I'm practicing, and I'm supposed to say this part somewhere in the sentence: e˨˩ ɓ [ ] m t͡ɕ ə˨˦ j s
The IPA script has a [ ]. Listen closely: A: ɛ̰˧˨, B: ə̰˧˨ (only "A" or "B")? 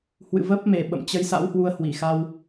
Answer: B